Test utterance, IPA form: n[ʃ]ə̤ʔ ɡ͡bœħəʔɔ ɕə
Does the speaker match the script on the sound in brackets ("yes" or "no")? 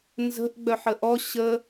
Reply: no